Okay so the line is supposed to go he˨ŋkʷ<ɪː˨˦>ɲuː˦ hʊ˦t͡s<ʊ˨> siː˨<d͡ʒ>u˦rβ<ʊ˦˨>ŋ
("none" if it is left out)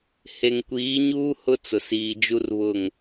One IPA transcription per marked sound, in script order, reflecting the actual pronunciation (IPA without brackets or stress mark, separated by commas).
iː˨˦, ʊ˨, d͡ʒ, ʊ˦˨